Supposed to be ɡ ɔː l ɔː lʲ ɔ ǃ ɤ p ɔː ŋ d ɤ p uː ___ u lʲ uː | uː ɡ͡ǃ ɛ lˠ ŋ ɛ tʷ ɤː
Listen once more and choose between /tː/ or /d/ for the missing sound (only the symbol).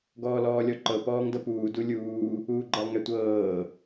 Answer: d